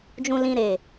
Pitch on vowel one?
low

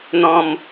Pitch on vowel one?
low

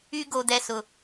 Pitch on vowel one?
high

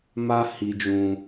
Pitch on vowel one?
high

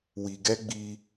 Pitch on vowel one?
low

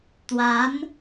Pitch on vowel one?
rising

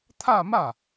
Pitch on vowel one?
falling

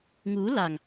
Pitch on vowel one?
rising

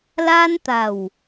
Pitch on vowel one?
high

